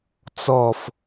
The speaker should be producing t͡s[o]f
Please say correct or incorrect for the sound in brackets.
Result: incorrect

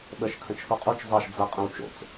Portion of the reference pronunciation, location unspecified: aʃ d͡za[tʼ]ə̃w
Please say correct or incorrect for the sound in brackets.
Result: incorrect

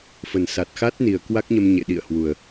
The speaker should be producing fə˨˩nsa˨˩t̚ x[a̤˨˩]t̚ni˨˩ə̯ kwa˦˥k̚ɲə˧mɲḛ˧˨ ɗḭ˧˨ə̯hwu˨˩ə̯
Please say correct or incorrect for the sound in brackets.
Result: incorrect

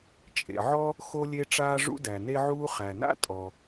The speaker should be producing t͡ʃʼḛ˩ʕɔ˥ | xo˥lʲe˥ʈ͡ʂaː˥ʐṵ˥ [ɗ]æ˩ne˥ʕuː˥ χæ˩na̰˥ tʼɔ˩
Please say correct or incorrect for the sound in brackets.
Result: incorrect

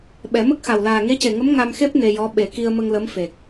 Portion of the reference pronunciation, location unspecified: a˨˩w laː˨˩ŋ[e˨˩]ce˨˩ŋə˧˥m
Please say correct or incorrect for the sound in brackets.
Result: incorrect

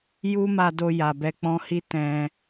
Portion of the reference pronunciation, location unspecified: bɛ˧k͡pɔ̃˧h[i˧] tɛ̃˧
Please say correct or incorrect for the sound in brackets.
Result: incorrect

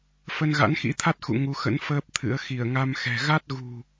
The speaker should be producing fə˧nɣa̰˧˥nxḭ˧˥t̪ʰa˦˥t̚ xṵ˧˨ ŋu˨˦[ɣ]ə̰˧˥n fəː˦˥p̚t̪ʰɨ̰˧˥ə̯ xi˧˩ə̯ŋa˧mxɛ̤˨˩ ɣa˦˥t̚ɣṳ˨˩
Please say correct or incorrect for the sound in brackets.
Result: incorrect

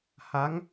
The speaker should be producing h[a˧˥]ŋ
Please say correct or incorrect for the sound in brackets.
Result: correct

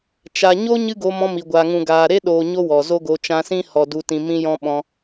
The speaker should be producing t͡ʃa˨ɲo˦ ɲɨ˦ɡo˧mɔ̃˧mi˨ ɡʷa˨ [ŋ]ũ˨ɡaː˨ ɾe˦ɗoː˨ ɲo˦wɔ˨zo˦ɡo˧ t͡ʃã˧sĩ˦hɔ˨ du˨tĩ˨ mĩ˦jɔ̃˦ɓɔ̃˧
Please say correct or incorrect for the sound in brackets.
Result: correct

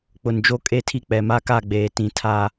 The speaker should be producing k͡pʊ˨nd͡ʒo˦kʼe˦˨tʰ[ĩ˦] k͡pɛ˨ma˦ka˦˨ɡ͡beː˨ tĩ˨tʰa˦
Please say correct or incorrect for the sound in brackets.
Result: incorrect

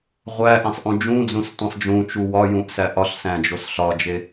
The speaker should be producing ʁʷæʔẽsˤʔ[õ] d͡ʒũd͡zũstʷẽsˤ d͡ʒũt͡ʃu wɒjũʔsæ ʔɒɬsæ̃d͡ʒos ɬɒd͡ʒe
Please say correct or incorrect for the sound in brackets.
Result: incorrect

